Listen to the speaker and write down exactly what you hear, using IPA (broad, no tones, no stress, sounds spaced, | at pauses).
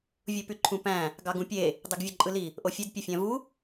vʲ u p y ǃʰ ũ p æ̃ | ɡ ɑ ɡ ũ pʲ e | dˤ i ɡ vʲ ø ǃʼ ɯ l i | ʔ o fʲ ø d pʲ e fʲ æ̃ v u